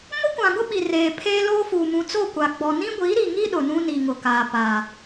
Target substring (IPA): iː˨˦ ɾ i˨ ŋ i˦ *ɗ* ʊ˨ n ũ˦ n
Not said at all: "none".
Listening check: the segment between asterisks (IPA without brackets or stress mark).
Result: ɗ